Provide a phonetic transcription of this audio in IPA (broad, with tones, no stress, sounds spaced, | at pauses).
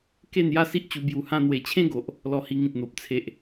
k e˥˧ n j a˦ s i˦ ʔ t͡ɕ u˧ b j u˨˩ h ã˧ n̪ w e˨˩ t͡ɕʰ ẽ˦ ɡ o˨ ʔ | l ɔ˧ h i˧ ŋ ĩ˨ t̚ n̪ o˨ p̚ t͡sʰ e˨ ʔ